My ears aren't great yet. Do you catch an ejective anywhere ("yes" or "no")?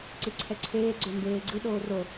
no